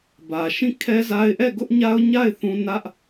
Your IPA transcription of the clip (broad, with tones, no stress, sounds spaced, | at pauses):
b ä˨ ʃ ĩ˦˨ kʰ ɛ˦ z a˦ ɪ̯ ʔ ɛ˦˨ ɡ ʊ˦ ʔ ɲ a˦ ʊ̯ ɲ a˦˨ ɪ̯ θ ũ˦ n ä˦ ʔ